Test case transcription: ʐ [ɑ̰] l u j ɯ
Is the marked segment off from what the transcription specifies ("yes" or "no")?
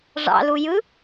no